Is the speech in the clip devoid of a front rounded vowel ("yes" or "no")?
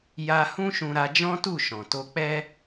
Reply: yes